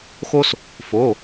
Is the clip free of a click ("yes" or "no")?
yes